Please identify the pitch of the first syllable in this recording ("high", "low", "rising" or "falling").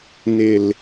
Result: low